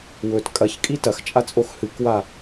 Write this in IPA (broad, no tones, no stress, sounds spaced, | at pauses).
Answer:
w ɵ t kʼ ɐ ç kʼ i t ɐ x t͡ʃʼ a t͡sʼ o x h ɨ k w a